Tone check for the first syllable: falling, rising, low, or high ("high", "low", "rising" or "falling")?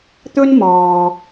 high